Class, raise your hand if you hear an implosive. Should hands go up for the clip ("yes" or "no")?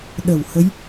yes